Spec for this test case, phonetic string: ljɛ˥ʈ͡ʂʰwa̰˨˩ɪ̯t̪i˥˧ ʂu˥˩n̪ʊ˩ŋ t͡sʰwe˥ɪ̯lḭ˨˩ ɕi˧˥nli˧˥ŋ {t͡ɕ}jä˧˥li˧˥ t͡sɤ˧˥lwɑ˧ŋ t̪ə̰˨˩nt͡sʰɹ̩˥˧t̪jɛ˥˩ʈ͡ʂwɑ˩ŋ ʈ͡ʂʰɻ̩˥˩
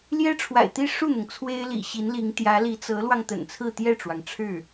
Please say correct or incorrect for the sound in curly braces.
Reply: incorrect